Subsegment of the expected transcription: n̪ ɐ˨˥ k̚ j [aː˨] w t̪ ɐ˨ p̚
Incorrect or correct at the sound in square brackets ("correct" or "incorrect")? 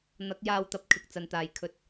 incorrect